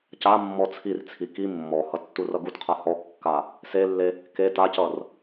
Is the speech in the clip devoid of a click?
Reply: yes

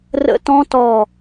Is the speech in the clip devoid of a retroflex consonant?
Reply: yes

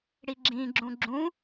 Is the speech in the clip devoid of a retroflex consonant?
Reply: no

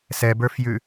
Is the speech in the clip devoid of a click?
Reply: yes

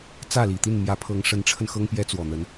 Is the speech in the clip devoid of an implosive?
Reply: yes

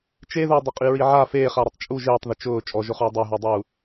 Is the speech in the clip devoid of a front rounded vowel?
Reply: yes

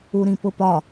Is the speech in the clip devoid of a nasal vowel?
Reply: no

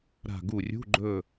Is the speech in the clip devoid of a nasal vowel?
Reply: yes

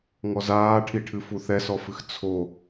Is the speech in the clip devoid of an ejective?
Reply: yes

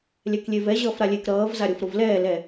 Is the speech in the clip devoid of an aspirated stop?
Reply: yes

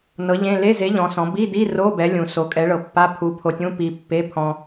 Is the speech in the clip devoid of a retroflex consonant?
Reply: no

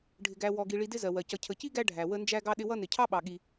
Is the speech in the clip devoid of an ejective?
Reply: yes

